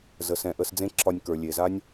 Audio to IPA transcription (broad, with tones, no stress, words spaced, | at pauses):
zə˨sɛ̃˨ʔə˧s d͡zẽ˦ǁʰɒ˧nʲkə˞˨ lʲe˨za˦nʲ